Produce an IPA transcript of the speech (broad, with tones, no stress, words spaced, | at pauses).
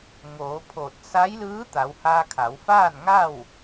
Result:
ŋoː˩˧pʰoː˧˩t̚ sa˧˥jlɯː˧˥ t̪a˩˧whaː˧ kʰa˩˧wfaː˥˨nŋa˥˨w